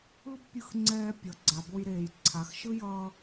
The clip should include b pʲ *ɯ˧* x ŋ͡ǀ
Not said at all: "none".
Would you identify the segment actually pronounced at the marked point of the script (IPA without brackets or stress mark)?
ɯ˧